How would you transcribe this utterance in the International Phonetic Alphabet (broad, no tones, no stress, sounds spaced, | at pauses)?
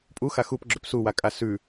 pʼ u x a x u p ɡ͡ǁ ɵ p s u w a kʼ a s ʉ